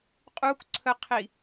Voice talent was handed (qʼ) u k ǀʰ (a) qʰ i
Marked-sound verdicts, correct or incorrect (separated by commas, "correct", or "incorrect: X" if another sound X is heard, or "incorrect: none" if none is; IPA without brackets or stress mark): correct, incorrect: ə